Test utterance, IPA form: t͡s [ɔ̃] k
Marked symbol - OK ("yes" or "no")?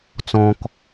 yes